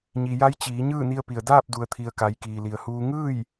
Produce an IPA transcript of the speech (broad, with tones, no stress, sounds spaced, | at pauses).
ɲ i˩ j a˧˥ j t͡ɕ iː˩˧ ɲ ɯː˥˨ n i˧ ə̯ p i˩ ə̯ d aː˥˨ p̚ d u˩ ə̯ t̪ʰ i˩ ə̯ k a˩˧ j k iː˩ l i˩ ə̯ h uː˧ ŋ ɯː˥˨ j